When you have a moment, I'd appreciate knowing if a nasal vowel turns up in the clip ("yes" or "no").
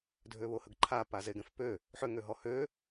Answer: yes